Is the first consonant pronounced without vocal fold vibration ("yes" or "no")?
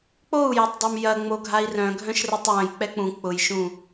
yes